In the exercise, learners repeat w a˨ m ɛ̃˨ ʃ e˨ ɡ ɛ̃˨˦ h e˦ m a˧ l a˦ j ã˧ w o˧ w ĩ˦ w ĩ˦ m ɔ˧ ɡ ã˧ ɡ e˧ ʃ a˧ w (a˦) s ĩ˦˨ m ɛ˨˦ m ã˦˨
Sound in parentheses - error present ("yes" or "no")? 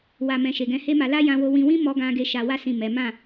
no